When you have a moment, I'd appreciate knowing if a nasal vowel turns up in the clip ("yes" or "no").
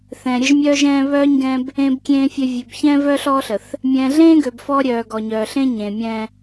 yes